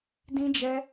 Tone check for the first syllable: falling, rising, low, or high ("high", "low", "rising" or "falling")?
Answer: high